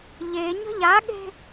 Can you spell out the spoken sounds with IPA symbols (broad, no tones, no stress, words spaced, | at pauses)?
ʎeɲə̤ ʎaɠe̤